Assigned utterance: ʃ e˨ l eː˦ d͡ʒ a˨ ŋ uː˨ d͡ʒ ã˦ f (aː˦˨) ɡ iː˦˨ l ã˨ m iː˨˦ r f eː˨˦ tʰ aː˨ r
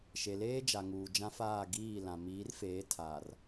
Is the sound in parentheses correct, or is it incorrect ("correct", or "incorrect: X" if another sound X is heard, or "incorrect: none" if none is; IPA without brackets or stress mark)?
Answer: correct